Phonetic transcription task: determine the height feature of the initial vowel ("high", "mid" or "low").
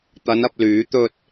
low